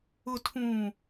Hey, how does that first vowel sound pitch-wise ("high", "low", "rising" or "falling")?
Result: low